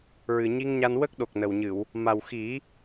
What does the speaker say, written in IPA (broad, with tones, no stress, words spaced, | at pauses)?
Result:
ɹɨ˨˩ ɲi˧ŋɲa˧n wə˦˥k̚ɗo˨˩k̚ nə˨˩wɲɨ˨˩˨w | ma˨˩wxi˨˩˦